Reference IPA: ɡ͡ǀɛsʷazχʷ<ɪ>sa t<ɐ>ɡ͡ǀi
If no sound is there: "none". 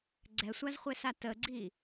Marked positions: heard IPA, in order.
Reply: ɛ, ə

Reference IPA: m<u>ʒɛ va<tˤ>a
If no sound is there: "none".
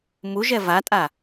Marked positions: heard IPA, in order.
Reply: u, tʼ

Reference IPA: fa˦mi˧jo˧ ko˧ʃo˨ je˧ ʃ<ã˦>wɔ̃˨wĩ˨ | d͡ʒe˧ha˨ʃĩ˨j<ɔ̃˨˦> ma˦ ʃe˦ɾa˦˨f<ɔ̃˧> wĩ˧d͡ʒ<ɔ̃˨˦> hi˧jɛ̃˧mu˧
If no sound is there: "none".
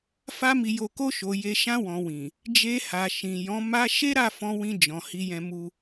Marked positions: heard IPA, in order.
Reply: ã˧, ɔ̃˨˦, ɔ̃˧, ɔ̃˨

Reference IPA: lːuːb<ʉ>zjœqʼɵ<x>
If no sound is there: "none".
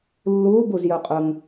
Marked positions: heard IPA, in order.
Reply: u, ŋ

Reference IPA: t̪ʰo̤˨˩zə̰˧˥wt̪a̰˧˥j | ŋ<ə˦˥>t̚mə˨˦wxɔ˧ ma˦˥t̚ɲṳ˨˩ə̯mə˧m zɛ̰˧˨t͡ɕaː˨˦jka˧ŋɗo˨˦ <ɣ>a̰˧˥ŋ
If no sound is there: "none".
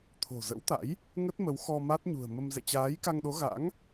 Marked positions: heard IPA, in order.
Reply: ə˦˥, ɣ

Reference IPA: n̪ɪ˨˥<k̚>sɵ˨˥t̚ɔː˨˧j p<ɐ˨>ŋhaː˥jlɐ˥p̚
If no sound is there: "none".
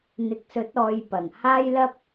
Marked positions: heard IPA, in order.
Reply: k̚, ɐ˨˩

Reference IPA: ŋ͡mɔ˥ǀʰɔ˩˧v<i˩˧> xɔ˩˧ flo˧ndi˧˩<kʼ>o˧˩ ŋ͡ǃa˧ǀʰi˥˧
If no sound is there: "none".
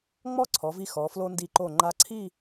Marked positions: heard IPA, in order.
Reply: i˧, ǃ

